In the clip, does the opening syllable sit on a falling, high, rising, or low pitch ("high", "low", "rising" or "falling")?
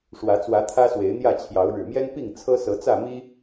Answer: rising